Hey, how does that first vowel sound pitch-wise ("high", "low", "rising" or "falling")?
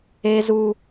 high